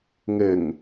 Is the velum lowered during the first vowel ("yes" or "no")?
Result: no